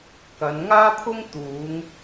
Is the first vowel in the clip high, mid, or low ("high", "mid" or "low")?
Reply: low